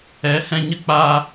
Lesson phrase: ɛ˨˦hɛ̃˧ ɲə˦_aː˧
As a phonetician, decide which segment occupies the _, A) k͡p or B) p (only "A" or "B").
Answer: A